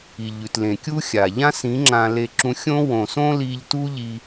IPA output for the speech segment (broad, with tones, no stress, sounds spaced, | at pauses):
i˨ ʎ ʉ˨ t l ẽ˨ kʲ u˦ xʲ a˨ ʎ ã˦ s ĩ˨˦ ŋ͡ǁ ã˧ l e˧ ǁ ũ˧ xʲ õ˦ w õ˨ s õ˦ l i˧ ʎ t u˦ ʎ i˧